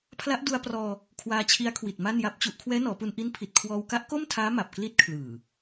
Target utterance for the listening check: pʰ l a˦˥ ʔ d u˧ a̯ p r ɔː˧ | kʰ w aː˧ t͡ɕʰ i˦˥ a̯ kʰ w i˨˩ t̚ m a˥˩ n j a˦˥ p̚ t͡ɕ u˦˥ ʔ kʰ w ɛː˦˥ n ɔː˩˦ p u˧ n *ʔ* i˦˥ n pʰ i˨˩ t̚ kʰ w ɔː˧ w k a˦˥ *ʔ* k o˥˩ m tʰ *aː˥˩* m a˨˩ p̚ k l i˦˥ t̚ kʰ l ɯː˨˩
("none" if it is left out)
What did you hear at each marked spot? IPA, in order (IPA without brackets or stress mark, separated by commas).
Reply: ʔ, ʔ, aː˦˥